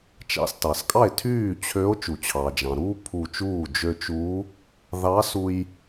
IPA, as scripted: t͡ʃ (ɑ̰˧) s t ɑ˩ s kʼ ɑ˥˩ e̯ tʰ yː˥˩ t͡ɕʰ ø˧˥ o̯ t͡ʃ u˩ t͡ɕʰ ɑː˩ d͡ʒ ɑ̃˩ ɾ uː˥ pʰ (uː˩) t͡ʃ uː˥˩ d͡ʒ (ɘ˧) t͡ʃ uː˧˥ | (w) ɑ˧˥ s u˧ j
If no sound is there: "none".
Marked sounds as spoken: ɑ̰˧, uː˧˩, ø˧, ð

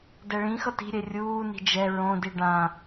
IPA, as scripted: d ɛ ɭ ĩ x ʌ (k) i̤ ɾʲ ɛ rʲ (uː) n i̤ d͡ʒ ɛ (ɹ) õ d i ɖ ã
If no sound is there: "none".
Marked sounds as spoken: t, uː, ɹ

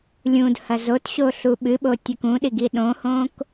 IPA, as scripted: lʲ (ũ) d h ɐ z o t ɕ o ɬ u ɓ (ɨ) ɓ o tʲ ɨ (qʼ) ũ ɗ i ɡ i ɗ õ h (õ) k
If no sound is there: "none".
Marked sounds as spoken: ũ, ɨ, k, õ

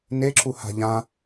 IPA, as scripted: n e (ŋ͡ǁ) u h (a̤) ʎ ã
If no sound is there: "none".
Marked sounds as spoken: ǁ, a̤

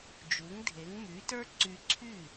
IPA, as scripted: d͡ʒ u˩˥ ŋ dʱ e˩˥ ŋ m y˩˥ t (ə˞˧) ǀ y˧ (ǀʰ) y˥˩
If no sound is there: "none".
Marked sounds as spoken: ə˞˥, ǀʰ

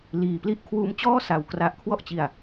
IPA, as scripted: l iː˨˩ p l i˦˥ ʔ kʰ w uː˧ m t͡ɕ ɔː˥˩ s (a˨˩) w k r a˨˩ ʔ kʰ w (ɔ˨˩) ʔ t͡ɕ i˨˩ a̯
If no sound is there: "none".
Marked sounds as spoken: a˨˩, ɔ˥˩

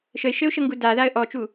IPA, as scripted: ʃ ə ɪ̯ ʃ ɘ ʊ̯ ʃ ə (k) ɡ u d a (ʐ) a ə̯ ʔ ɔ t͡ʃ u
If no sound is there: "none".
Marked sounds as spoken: ŋ, ð

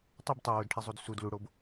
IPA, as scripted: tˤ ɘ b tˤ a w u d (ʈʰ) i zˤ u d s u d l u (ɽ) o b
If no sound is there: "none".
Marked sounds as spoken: ʈʰ, ɽ

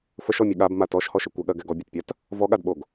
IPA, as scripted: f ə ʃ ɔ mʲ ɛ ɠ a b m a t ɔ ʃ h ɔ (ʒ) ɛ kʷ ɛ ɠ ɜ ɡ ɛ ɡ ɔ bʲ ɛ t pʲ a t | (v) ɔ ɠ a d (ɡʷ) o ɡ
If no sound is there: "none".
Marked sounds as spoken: ʃ, v, ɓ

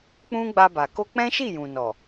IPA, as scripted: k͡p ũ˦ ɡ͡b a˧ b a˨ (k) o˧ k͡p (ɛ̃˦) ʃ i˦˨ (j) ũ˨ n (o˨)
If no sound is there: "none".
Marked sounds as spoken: k, ɛ̃˦, j, ɔ˨

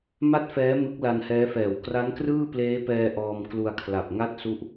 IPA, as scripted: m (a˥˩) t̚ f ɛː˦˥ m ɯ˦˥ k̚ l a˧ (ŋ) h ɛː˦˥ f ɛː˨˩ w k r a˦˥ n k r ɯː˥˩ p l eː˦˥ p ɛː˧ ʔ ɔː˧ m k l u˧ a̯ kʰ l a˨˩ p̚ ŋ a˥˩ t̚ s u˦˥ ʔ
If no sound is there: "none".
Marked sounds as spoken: a˥˩, n

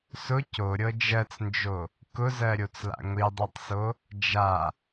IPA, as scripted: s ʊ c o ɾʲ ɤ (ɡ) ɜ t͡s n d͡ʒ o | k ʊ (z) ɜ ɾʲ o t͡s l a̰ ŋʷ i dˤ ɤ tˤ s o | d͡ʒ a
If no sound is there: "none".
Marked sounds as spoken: d͡ʒ, z

